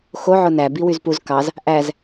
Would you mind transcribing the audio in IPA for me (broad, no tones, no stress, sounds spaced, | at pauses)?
x o ʕ o n æ b i w y z p u z k ɑ z | ʔ æ z